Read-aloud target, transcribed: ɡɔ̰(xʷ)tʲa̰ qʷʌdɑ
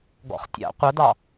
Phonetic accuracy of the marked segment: incorrect: χ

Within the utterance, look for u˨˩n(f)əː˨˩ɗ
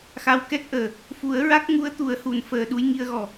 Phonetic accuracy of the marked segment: correct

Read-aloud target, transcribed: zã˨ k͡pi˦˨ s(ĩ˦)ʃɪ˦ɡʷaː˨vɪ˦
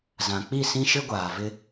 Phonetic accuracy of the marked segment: correct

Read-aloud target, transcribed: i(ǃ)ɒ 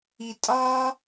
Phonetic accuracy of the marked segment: incorrect: tʼ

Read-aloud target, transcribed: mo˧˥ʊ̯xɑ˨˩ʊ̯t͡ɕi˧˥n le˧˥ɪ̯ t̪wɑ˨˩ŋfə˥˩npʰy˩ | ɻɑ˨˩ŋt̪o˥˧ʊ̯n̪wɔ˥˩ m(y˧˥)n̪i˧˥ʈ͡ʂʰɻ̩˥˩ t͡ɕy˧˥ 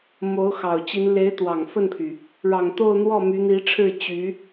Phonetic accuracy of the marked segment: correct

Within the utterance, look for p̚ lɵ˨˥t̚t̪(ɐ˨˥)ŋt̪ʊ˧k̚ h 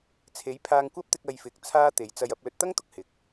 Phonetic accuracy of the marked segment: incorrect: ɐ˥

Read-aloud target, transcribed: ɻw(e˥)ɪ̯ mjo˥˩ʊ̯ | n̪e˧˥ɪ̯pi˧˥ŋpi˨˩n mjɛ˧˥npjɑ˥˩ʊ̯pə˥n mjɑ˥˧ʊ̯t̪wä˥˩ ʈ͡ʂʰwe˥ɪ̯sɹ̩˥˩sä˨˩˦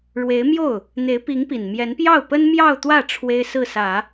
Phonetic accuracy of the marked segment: incorrect: e˧˥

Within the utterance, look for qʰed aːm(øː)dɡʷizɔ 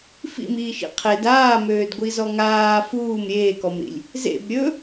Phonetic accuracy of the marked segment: correct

